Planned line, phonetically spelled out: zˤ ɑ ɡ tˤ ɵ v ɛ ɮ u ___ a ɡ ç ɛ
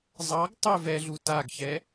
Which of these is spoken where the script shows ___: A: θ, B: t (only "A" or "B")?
B